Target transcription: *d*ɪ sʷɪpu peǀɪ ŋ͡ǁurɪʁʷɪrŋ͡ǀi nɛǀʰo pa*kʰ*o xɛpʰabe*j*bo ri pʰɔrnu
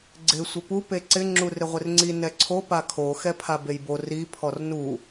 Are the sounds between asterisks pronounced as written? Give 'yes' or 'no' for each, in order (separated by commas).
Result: no, yes, yes